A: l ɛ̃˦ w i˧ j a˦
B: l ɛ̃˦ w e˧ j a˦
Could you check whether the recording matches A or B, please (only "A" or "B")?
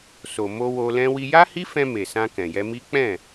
A